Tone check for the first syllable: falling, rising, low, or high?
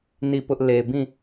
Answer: falling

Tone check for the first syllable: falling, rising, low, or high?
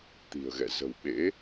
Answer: low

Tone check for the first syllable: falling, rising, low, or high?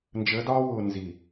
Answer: rising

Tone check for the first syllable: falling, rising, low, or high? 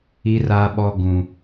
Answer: high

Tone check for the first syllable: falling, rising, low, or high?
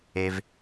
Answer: low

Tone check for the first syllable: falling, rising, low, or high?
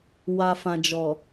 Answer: low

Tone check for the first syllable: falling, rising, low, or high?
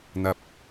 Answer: low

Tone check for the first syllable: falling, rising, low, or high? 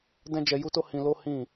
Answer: high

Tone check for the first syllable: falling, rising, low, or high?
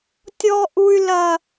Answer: high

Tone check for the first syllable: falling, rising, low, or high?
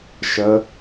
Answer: rising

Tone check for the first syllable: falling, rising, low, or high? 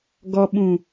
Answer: low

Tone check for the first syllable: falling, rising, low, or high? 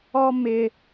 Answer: high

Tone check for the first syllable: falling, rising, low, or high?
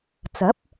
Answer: rising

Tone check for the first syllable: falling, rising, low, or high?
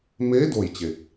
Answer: rising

